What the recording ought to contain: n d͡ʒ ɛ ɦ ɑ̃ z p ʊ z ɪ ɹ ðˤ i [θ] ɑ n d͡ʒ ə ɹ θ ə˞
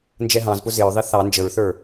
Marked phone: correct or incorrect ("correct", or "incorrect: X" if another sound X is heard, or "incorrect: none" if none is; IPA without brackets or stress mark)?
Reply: correct